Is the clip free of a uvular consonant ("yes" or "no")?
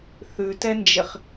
no